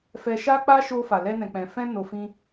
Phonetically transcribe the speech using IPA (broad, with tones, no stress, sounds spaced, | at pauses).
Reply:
f ɛ˧ ʃ a˦ k͡p a˦ ʃ o˧ f a˨ l ɛ˧ n ɛ̃˨ k͡p ɛ̃˨ f ɛ̃˧ n o˧ f ĩ˦